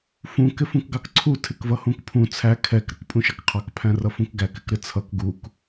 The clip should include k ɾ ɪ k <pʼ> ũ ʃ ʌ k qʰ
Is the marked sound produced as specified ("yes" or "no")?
yes